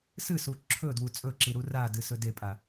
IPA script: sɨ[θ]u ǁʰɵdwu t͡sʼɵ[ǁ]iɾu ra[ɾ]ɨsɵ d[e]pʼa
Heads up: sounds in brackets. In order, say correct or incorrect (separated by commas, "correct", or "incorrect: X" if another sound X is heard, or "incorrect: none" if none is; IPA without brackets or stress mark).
incorrect: s, correct, incorrect: d, correct